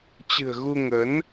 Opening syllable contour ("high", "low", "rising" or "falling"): low